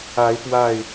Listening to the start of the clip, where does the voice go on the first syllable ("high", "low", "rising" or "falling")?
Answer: rising